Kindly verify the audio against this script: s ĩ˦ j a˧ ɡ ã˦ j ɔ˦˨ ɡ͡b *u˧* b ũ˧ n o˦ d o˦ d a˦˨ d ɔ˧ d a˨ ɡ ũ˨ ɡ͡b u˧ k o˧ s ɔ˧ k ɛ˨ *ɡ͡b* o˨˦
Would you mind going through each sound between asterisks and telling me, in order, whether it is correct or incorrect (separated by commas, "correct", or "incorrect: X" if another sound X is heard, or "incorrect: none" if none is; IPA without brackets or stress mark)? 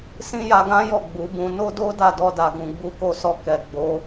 incorrect: u˨˦, correct